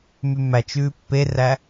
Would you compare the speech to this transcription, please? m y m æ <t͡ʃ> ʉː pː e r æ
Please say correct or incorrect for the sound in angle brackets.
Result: correct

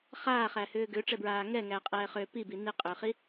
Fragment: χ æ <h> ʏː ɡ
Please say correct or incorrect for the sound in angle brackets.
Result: correct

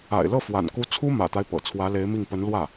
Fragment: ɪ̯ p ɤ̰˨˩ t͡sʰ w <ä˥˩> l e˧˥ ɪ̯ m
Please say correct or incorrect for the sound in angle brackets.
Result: incorrect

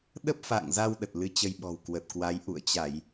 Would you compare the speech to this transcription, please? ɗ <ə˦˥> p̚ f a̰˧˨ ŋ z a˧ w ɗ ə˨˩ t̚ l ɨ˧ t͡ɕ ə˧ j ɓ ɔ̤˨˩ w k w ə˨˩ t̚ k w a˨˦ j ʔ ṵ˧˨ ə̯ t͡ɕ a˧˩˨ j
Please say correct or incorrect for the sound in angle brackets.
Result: correct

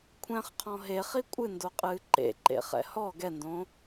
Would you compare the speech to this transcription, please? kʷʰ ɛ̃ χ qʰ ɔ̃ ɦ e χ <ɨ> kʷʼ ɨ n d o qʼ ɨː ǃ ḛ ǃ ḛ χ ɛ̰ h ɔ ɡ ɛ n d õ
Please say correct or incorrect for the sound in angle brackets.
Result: incorrect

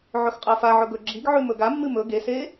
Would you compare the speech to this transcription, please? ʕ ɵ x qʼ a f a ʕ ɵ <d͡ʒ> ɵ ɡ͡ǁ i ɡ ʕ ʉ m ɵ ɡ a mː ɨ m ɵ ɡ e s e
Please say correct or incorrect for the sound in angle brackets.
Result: incorrect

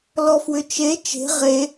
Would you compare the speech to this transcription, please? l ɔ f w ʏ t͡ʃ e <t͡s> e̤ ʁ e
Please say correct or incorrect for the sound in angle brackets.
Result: incorrect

